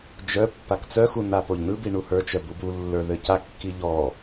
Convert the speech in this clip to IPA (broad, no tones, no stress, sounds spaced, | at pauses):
d͡ʒ œ pː a k t͡s œ x u n a p o ʎ n ɯ b i ɳ u h ə˞ t͡ʃ œ b u b u lː ə˞ ð ɘ c a kː i ʎ ɔ